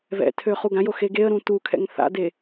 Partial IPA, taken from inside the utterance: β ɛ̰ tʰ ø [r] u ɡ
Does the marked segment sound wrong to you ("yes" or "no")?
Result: yes